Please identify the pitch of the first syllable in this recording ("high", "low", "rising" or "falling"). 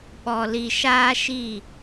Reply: low